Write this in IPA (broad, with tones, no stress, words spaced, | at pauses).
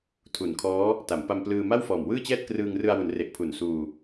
tʰu˨˩nkʰɔː˦˥ | ta˩˦mpa˧mplɯː˧ ma˥˩wfɔː˨˩mwɯː˥˩t͡ɕɛː˥˩t̚ krɯː˧ŋrɯ˧a̯wu˩˦nre˨˩ʔ pʰu˨˩nsuː˧